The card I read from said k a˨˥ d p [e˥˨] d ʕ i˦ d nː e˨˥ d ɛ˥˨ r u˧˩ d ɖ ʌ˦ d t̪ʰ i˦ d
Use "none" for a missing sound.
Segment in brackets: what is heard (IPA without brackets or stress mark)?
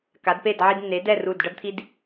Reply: e˥˨